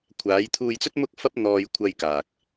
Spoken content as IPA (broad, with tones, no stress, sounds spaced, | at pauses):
kʷʰ aː˨˧ j t̪ʰ uː˧ j t͡s ɵ˥ t̚ m ʊ˥ k̚ f ɐ˥ p̚ n̪ ɔː˧ j kʷʰ ɐ˧ j k aː˨ k̚